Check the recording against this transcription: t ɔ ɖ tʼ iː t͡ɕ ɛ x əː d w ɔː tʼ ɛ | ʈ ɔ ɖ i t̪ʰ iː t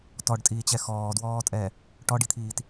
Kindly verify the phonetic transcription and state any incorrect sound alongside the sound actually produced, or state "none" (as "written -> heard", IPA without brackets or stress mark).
əː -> ɔː